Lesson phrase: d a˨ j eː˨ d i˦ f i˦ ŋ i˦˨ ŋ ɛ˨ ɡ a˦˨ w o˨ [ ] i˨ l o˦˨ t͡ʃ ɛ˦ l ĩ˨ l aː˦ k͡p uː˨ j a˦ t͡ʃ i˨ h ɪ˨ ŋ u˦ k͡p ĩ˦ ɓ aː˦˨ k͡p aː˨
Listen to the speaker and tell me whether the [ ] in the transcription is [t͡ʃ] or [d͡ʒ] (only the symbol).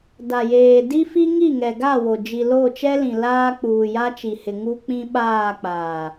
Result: d͡ʒ